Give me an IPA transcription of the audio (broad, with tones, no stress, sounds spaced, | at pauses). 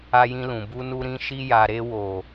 a˧ j ĩ˧ l ũ˨ b u˧ n u˧ ɾ ĩ˧ ʃ i˧ j a˨ ɾ e˧ w o˨